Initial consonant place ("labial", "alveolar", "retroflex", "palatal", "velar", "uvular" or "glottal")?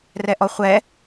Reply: alveolar